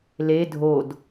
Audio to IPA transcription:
l e dʱ o d

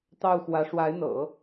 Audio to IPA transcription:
t̪ ɑ˥˩ ʊ̯ x w ä˧˥ ʂ w a˧˥ ɪ̯ n̪ ɤ̰˨˩˦

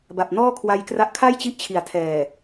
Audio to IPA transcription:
b a˨˩ p̚ n ɔː˥˩ kʰ w a˧ j k r a˦˥ ʔ kʰ a˥˩ j t͡ɕ i˦˥ ʔ t͡ɕʰ i˩˦ a̯ tʰ ɛː˨˩

